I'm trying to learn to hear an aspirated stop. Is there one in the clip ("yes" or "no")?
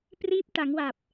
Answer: no